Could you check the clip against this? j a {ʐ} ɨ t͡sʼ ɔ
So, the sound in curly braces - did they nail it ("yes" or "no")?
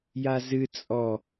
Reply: no